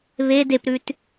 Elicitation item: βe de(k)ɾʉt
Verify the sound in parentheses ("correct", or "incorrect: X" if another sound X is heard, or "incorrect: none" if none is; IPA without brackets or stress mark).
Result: incorrect: p